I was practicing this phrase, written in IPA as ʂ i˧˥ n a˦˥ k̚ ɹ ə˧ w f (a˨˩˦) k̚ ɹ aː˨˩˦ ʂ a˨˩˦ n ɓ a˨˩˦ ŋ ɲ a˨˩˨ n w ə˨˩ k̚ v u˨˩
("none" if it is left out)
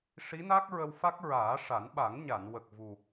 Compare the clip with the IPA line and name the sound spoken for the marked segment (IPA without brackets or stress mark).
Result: a˦˥